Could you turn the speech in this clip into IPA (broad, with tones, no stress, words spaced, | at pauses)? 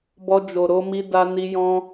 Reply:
bɔ˧d͡ʒo˨ɾo˧mi˧ da˧ni˧ jɔ̃˧